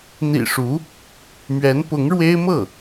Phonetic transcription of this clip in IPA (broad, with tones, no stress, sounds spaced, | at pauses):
n̪ ḭ˨˩ ʂ u˧˥ | m ɥ ɛ˧˥ n p ʊ˧˥ ŋ ɻ w e˥ ɪ̯ m ɤ˥˩